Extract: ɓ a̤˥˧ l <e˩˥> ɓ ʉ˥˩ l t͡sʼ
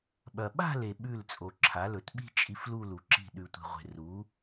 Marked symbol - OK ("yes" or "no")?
no